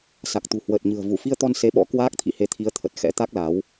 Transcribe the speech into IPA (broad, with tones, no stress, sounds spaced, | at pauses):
s a˨˩ k̚ t̪ ṳ˨˩ h w əː˨˩ t̚ ɲ ɨ̤˨˩ ə̯ v u˧˩ f i˧ ə̯ t̪ ɔ˧ n s e˨˦ ɓ ɔ̰˧˥ k w aː˦˥ k̚ t̪ʰ ḭ˧˨ h e˨˦ t̪ʰ i˨˦ ə̯ t̪ʰ ə˨˩ t̚ x ɛ̰˧˥ t̪ a˦˥ k̚ l a˨˦ w